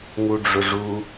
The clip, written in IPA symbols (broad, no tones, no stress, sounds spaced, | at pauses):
ŋ u ɖ͡ʐ ʊ ʐ u